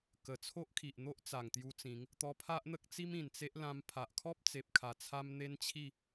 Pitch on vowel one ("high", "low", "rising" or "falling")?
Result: low